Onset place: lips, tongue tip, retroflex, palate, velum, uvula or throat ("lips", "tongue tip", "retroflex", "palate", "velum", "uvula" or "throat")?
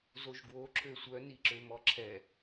tongue tip